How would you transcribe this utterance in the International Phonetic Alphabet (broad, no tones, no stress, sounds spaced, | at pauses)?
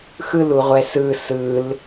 x ɯ l u ʁʷ ɛ s ɯ s ɯ l